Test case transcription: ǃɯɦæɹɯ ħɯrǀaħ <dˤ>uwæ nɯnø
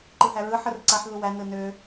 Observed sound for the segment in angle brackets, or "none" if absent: ð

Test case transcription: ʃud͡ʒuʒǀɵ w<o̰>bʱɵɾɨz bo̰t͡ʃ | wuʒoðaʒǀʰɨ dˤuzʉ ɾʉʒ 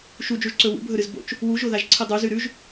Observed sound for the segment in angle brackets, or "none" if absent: ṵ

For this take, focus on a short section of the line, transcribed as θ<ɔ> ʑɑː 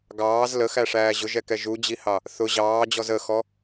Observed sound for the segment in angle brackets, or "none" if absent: ʊ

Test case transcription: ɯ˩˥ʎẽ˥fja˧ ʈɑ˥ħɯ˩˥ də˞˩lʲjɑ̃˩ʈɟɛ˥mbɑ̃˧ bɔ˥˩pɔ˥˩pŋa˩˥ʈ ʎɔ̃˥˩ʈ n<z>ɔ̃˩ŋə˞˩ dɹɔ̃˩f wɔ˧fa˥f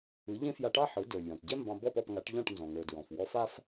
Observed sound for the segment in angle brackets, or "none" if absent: z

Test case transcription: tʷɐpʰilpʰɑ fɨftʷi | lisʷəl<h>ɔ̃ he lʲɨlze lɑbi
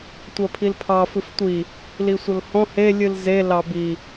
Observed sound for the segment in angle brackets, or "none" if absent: h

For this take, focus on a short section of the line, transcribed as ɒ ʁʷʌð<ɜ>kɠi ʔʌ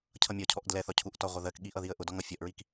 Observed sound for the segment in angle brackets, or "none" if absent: ɜ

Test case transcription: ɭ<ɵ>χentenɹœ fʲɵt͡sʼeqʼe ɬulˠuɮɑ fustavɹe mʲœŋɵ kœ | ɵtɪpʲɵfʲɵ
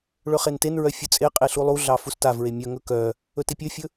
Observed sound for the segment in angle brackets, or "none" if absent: ɵ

